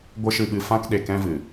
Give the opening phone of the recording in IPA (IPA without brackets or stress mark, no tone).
ɡʷ